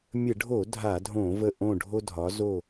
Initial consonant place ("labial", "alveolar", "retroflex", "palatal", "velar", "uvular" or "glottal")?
labial